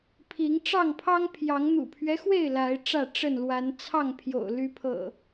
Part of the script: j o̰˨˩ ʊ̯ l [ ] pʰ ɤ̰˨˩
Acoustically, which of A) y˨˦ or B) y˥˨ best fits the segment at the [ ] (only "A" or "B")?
A